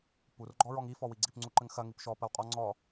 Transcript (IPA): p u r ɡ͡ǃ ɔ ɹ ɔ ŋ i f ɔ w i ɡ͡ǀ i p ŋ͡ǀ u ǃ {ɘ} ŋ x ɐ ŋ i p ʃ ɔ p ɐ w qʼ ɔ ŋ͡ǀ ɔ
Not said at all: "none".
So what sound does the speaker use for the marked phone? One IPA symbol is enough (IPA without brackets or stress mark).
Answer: ɘ